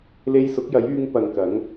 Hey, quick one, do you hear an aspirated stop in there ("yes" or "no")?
no